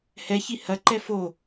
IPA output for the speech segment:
hɛçi hɐǃɛ fo

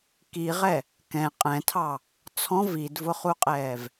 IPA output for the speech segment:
kiʁɛ | kɛ̃ qʼɛ̃tʰɑ | t͡sʰɔ̃ vidvʊχuqʼɛːv

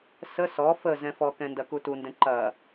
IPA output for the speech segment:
sə sɔ fə zɛ̃fɔkɛ̃ ndɐkutundɛ̃ ǃɐ

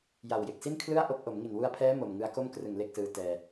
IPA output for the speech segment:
ja˨˩wje˨˩k̚si˥˩nkʰlɯ˥˩a̯ ʔo˥˩k̚ ʔo˩˦mŋi˨˩nwu˧a̯pʰɛː˦˥ mo˨˩mŋɯ˦˥a̯ ko˥˩mkrɯ˨˩ŋ le˥˩k̚sɯː˦˥ tɛː˧

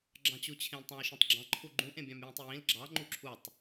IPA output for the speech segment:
ɡ͡ǁɑ̃t͡ɕu t͡ɕʰẽltˤɑ̃jʃũtˤɡ͡ǁɑ̃ ǃʰuɡ͡ǃũʔẽ bʲɑ̃mjĩtˤjĩl ɡ͡ǁɑŋ͡ǃu ǁʰutˤ

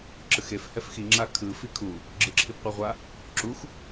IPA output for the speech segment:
ǁɯxef hɛfxi ŋ͡ǁakʰɯ fikʰu | ɡ͡ǁɯǁʰibqʷaʁʷa | ǁux

